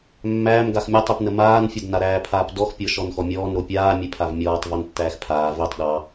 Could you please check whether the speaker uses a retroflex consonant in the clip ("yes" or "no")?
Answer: no